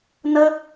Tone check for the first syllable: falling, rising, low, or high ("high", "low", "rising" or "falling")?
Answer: high